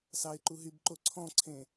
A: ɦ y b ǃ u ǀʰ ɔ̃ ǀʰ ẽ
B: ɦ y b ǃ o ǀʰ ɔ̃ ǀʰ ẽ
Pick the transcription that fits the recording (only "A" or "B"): B